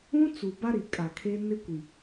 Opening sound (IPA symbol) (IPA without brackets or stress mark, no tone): ũ